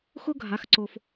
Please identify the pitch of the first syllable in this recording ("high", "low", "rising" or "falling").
high